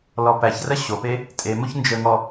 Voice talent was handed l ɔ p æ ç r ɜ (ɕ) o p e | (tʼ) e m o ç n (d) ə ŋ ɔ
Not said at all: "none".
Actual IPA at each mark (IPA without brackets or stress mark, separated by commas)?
ɕ, tʼ, d͡ʒ